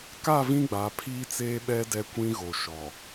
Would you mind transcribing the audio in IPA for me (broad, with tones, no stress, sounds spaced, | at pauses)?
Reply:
k a˦˨ v ĩ˦ ɡ͡b a˨˦ pʰ iː˦ t͡s eː˦ ɓ ɛ˦ d ɛ˦ kʷ ĩ˦ ɣ o˨ ʃ ɔ˨